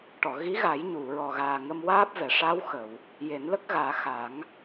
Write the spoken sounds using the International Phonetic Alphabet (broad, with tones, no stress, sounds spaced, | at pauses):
ʈ ɔ˨˩˨ ɣ i˧˥ ɣ a˨˩˦ j ɲ u˨˩˨ ɹ ɔ˨˩ ɣ aː˨˩ ŋ ə˧ m w aː˦˥ p̚ v ɛ˨˩˨ ʂ a˧˥ w x ə˨˩˨ w | j e˨˩˦ n l ə˦˥ k̚ ɣ aː˨˩˦ x a˨˩˦ ŋ